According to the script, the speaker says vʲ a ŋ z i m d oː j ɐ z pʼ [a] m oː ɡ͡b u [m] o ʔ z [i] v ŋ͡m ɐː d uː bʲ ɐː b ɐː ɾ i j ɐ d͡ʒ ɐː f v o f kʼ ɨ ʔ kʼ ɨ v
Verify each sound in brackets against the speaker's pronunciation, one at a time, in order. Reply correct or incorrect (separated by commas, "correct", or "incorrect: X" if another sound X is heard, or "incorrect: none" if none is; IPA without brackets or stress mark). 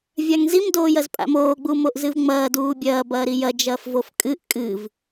incorrect: a̰, correct, incorrect: ɨ